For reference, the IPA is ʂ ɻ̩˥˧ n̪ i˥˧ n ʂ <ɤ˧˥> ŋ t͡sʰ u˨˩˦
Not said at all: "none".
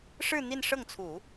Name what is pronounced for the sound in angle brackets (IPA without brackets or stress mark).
ɤ˥˩